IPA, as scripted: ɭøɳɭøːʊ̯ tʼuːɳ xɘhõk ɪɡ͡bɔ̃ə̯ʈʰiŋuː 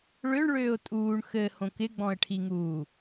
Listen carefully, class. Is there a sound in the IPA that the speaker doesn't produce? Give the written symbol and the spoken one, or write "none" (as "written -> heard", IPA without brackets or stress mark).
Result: none